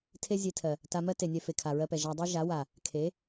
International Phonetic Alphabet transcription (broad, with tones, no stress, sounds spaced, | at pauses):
tʰ e˦ zʲ e˧ tʰ ɜ˨ | t a˧ m ɜ˦ t e˨ nʲ ɛ˧ f e˨ kʰ a˨ ɹ ɜ˧ p ɛ˨ ʒ a˧ dˤ i˦ ʒ a˨˦ w a˨ | kʰ e˨˦